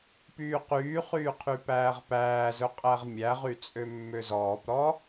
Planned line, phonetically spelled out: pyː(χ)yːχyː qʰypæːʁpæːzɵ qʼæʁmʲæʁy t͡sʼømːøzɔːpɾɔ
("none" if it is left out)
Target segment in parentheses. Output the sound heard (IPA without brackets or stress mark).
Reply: q